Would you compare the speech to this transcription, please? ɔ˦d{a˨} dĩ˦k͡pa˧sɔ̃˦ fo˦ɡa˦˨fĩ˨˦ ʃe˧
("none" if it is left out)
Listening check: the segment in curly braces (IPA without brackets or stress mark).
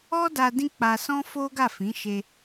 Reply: a˧